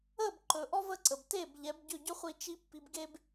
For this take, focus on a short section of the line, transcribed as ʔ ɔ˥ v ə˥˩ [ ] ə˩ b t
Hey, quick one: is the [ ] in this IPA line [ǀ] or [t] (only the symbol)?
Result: ǀ